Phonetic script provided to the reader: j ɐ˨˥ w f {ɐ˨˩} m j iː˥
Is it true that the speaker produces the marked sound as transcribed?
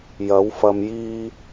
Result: no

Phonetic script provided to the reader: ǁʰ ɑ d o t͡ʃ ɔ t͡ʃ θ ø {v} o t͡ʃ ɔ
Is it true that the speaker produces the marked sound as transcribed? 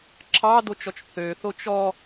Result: no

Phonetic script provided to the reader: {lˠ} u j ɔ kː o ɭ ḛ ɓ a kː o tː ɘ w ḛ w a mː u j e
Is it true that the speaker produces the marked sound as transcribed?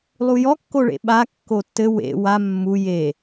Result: yes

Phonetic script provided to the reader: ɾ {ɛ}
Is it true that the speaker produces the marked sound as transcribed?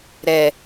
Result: yes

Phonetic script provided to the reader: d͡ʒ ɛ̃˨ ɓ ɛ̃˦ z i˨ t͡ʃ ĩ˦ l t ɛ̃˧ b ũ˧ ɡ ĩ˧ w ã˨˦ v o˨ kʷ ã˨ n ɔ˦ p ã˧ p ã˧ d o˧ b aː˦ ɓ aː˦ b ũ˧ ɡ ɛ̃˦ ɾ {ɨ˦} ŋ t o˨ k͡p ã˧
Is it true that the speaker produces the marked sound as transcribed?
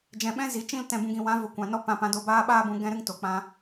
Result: yes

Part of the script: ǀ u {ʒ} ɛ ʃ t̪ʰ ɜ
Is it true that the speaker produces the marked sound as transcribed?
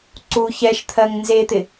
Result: no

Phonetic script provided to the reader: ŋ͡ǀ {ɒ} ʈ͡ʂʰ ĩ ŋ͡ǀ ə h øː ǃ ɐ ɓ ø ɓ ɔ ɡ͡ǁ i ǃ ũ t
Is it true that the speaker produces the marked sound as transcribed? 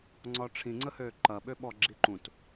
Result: yes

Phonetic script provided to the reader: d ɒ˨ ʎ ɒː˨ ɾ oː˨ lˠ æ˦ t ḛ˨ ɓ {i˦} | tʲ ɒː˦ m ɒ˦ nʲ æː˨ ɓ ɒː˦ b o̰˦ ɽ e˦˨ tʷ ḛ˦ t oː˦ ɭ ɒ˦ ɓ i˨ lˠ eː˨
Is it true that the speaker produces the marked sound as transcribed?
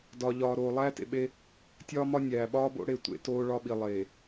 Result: no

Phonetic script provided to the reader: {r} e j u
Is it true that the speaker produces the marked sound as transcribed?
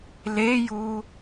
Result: no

